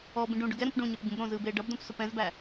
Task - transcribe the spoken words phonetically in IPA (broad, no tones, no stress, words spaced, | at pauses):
ɔbĩ ɖũ ɖʊɡɛɾũp ɖũɲɛp ɟũbɾõzɯːb eːɖʌbdõp sʊpɛ̃zbæ